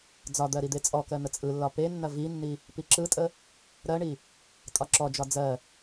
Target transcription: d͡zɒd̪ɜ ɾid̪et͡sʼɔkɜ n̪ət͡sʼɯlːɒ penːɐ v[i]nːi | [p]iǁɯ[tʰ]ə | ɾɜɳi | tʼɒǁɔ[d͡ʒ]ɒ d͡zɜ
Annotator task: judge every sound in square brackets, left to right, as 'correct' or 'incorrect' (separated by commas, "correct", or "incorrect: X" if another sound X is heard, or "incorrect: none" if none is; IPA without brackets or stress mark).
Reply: correct, correct, incorrect: tʼ, correct